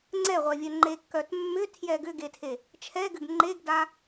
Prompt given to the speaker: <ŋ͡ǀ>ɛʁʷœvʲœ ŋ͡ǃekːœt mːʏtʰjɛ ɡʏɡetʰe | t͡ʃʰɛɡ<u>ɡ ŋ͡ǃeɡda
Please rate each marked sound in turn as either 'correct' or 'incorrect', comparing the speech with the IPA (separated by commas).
correct, incorrect